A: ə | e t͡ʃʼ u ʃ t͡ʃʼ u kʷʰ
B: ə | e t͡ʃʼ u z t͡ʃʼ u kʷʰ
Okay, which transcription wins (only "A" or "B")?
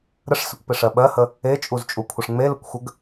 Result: B